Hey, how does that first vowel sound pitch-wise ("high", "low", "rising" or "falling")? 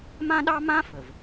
high